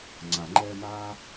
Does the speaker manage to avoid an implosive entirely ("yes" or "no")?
yes